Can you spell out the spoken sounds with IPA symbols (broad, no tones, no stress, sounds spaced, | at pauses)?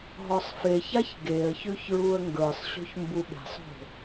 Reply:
ɦ ɔ sˤ f e ç a ç ɡ e ə̯ ç ʉ ç ɹ u ə̯ ŋ ɡ ə˞ sˤ ɕ o̤ ç m b u ɓ e̤ sˤ o̤